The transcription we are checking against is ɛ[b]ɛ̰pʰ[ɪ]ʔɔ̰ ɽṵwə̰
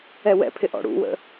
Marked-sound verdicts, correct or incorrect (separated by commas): incorrect, correct